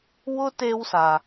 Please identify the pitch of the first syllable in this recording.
high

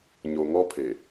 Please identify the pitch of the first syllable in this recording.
low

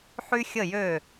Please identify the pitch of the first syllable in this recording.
high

